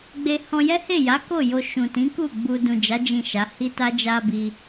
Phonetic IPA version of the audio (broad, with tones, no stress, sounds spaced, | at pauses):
ɡ͡b e˧ h ɔ̃˧ j ɛ˦ h e˦˨ j a˨˦ k o˦˨ j o˧ ʃ ũ˨ t ĩ˨˦ k u˦˨ ɡ͡b u˧ d ũ˨ d͡ʒ a˨˦ d͡ʒ ĩ˦˨ ʃ a˨˦ h i˦ t a˦ d͡ʒ a˧ b i˧